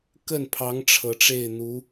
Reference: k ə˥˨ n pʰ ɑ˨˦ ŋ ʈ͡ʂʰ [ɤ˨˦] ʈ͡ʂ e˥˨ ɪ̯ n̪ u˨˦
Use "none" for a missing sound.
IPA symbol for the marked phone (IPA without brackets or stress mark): ɤ˨˦